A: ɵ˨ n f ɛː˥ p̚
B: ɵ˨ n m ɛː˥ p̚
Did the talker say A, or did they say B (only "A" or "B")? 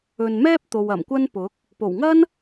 B